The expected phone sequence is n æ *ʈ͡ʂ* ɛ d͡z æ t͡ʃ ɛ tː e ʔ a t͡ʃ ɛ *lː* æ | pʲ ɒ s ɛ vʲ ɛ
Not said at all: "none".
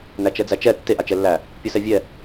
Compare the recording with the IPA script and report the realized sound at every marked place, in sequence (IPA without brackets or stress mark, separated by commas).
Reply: t͡ʃ, lː